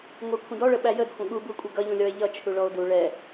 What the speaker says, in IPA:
ŋʷækʷʰə̃dɔɭə ɓæjədxʷə̃ ɠubukʷʼʌ ɡʌʎũlʲɔe̯ ʎʌ t͡ʃʰuɭɔo̯du ɭɛ

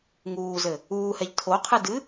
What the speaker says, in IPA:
ŋuːzɘ | uːhɛʎ tʰoqʰɨ dɨ

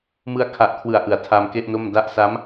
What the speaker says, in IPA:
mɯ˧a̯kʰa˨˩ʔkʰwɯ˩˦a̯ ʔɯ˩˦a̯tʰa˧mke˥˩ʔno˥˩m da˦˥ʔ sa˦˥m

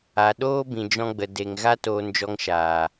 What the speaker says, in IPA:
a˨ ɗoː˦bĩ˨d͡ʒɔ̃˧ ɡ͡bə˨ de˧ŋ ɣa˦toː˧nd͡ʒɔ˧ŋʃaː˨

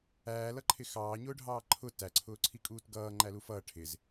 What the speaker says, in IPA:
æːlʌǃʰɪ xɑːɲʊːɖʱɑː ǃʰʊ tæǀʰʊː ǀʰikʼuːtɡʌː ŋ͡ǃælufʌː ʈʰɪz

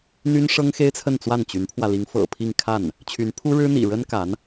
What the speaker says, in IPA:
n̪y˥nʂɤ˥ŋxe˥ɪ̯t͡sʰə˥˧n t͡swa˥˩nt͡ɕy˧˥npʰwä˧ li˧˥ŋfɤ̰˨˩pʰi˥˧ŋ kʰa˥˩n | t͡ɕʰy˧˥npʰu˥ɻɻ̩˥ n̪ḭ˨˩ ɻə˥nka˧˥n

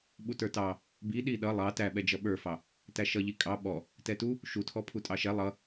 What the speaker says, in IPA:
ɓutə˞tɑ | bi ɗiɗʌ lˠɑ tæɓɛd͡ʒʌ ɓə˞fɑ | tæʃʌʎi kʼɑ ɓɔ | tɛtu | ʃutʰɔpʰu tʼɑʃɛ lˠʌ

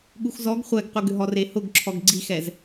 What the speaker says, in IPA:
ɠuxzɔɡ χʷɛɡqʷɨɡʏɦɔ rehʊɡǁʰɔɡ ɡ͡ǀixɛz

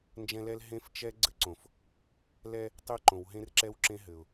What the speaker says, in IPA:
nd͡ʒɛ̃˦lɛ˦l ɦẽ˦ft͡ʃɛ˦ ɡ͡ǀɘ˦ǀõ˨f | lɛ˦ | tˤe˦ǃõ˨wɦẽ˦rǁɛ˦w ǁẽ˦ɦɘ˨ʊ̯

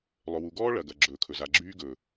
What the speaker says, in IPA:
lˠɵ˨wu˨ɡɔː˦ ɭɐ˨ɡɐ˨ɡ͡ǁɵː˨ kʰɵ˨za˨ ɡ͡ǁyː˦ ɡɵː˨

